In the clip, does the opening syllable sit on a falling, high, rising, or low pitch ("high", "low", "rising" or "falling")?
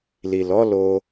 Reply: low